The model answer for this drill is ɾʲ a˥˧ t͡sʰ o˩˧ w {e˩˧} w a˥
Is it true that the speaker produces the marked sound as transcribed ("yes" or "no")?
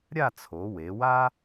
yes